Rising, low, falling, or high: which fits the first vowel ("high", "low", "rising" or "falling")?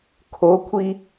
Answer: rising